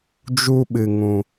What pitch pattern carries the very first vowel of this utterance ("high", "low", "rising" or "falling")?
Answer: high